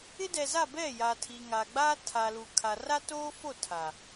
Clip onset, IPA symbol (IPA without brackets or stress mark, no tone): ɪ